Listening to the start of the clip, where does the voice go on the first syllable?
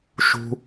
low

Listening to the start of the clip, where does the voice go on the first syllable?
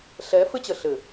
rising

